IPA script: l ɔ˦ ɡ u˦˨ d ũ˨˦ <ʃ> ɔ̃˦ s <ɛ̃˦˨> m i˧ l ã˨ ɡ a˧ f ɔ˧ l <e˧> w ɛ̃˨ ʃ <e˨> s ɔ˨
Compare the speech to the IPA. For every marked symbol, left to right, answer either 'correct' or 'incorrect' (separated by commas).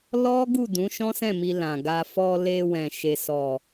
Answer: correct, correct, correct, correct